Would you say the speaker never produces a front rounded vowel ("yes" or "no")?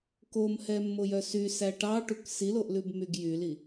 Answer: no